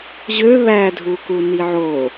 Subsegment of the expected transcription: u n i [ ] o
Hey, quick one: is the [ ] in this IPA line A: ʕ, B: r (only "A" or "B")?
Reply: A